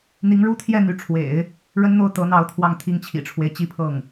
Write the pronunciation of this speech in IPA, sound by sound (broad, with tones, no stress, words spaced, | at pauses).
n̪i˧˥ŋɻu˥t̪ʰjɛ˥˩n̪y˧˥ ʈ͡ʂʰwḛ˨˩˦ɪ̯ | ɻə˥nn̪o˥˩ʊ̯ t̪ɤ˧˥n̪ɑ˧˥ʊ̯ t̪ʰwɑ˥˧ŋt̪ʰi˥˩ŋt͡ɕʰḭ˨˩ʈ͡ʂʰwe˦ɪ̯ t͡ɕi˥˧pʰɤ˥˩ŋ